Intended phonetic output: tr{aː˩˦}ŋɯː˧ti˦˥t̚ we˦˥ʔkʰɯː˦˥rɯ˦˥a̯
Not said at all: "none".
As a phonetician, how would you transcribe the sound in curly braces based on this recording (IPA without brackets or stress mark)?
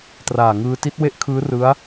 aː˨˩